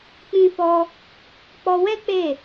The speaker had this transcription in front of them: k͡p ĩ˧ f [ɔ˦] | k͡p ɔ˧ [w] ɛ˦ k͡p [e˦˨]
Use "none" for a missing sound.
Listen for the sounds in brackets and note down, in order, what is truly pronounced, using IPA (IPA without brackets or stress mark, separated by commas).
ɔ˧, w, e˦˨